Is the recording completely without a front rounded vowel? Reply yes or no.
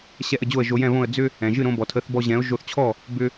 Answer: no